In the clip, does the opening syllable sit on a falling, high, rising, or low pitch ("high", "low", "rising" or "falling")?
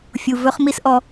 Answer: low